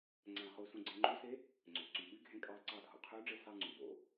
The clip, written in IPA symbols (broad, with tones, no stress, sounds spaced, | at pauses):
ŋ͡ǀ æ̃˧˩ χ u˧ s ũ˧ ɡ͡ǀ ẽ˧ ŋ͡ǃ u˧˥ s e˧˥ | ŋ͡ǀ ø˩ ǀ y˩ ɓ y˧˥ ɡʱ ẽ˧ kʼ ɑ˧ ǀ ɑ˧˩ dʱ o̰˩ qʰ yː˧˥ ɖ͡ʐ e˧ s ɑ˧ ŋ͡ǀ ũ˩ b o̰˨˩˦